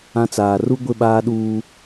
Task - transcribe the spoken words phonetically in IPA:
ã˦ t͡s aː˨ r u˦ ɡʷ ɪ˦˨ ɓ aː˦ ɗ uː˦

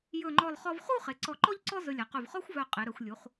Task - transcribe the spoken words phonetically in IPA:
j ɵ˧˩ ŋ͡ǃ ɔ˧˩ lˠ χ ɔ˧ v χ u˥˧ χ e˩˧ ǀ ɔ˧˩ ǃ ɔ˥ ʎ ǀ ɔ˥ z ɵ˧ lʲ a˩˧ q ɵ˧˩ v χ ɔ˥ xʷ v œ˧˩ qʼ e˩˧ ɾ œ˩˧ xʷ lʲ u˩˧ χ

